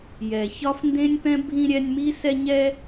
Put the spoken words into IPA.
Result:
j ɛ˩ ç ɒ˦ f n d ẽ˥ nʲ p ɛ̃˥ bʱ ĩ˦ ɾʲ ɛ˦ nʲ m i˥ s ɛ˦ ɲ ɛ˥

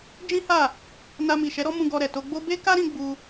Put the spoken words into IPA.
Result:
d͡ʒ ĩ˦ h a˦˨ | n a˧ m i˨ ʃ ɛ˨˦ ɾ ɔ˦ m ũ˧ ɡ ɔ˧ ɾ ɛ˨ t o˧ ɡ͡b o˦ b e˦ k a˦ ɾ ĩ˧ ɡ͡b u˧

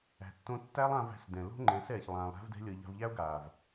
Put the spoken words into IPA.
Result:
æ̤˨ tː õ˧ tː æ˦ lˠ ã˧ v æ̤˧ s d ɛ̃˨ l o̤˦ ŋ͡ǃ ɛ̃˨˦ s ɛː˨ ç lˠ ãː˧ lˠ ɾ æ̤˦ v d ɛ̤˦ lʲ ɤ˧ ʎ a̤˧ v ʎ æ˦ o̯ ɡ aː˨ v

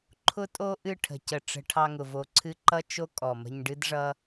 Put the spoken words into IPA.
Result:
ǃʰ ʊ˧ tʼ o˧ ʔ ɨ˦˨ ʈʰ ə̤˨ c ə˨ ʈ͡ʂ ə̤˧ ʈʰ ɑ˧ ŋ ʊ˨ v o˨ ǀʰ ɨ˧ ǃ ʌ˦ t͡ʃ o˦ kʼ ɔ˨ m ə̤˧ ɲ ɖ ɨ˦ d ʐ ʌ˦

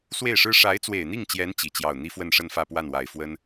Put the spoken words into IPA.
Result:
s w e˥˩ ɪ̯ ʂ ɻ̩˥ ʂ a˧˥ ɪ̯ t͡s w e˨˩ ɪ̯ n̪ i˥˩ ŋ t͡ɕ j ɛ˧˥ n t͡ɕ i˨˩ t͡ɕ j ɑ˥˩ ʊ̯ n̪ i˥ f w ə˥˧ n ʂ ə˥˧ n f ä˥˧ p w a˥˩ n w a˨˩ ɪ̯ f w ə˥ n

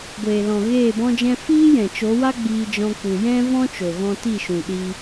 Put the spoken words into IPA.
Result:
ɡʷ eː˨ l ɔ̃˨ ɣ eː˦˨ b ɔ̃˦ d͡ʒ ɛ̃˦ f iː˦ j ɛ̃˨ t͡ʃ o˨˦ w a˦ ɡ͡b iː˧ d͡ʒ ɔ̃˧ k͡p u˨ j ɛ̃˦ v ɔ̃˦ t͡ʃ o˨ ɣ ɔ̃˧ t i˦˨ ʃ ũ˨ ɗ i˧

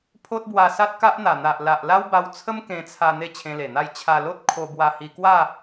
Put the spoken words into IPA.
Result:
pʰ o˦ t̚ b w a˧ s a˦ t̚ k a˦ ʔ n̪ a˨˩ n̪ a˨ ʔ l a˨ ʔ l a˦ w b a˧ w t͡sʰ ə˦ m k ẽ˧ t͡sʰ a˧ n̪ e˥˧ t͡ɕʰ ẽ˧ l e˨˩ n̪ a˥˧ j t͡ɕʰ a˧ l o˦ t̚ kʰ o˧ b w a˧ h i˧ k w a˥˧

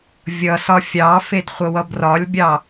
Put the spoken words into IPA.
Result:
vʲ ʌ s ɒ fʲ ɑ f e d χʷ ə w ʌ b r ɒ lʲ bʲ ɑ

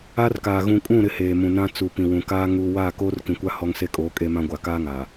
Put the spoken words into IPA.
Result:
a˦ r k aː˨ ɣ ũ˨ kʼ ũ˦˨ ɾ ɪ˦ h eː˨ m ũ˨ n ã˦ t͡s u˨ p ĩ˨ w ũ˨ k aː˦ ŋ uː˨ w aː˦˨ k oː˦ r k ĩ˨ kʷ a˦ h ɔ˦ ŋ s e˦ kʼ oː˨˦ kʼ e˦ m ã˦ ɡʷ a˨ k aː˦ ŋ aː˨

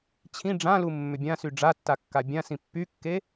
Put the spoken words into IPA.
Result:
t͡ɕʰ ĩ ɖ͡ʐ ã l u mː ʏ bʲ ã s y ɖ͡ʐ a tː a kː a bʲ ã s ĩ pː y kː e

